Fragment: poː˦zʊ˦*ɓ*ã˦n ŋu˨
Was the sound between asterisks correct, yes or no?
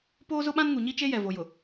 yes